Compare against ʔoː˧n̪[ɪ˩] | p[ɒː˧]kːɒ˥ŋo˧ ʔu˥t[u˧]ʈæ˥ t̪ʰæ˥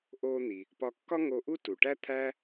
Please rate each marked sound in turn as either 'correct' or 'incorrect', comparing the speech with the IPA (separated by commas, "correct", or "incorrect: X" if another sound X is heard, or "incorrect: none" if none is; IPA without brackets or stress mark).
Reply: incorrect: i˩, incorrect: ɒ˧, incorrect: u˩